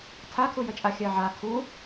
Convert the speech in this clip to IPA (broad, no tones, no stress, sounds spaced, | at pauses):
tʰ a kʰ u j ə t͡ʃʼ a xʲ ɜ ʕ a kʰ u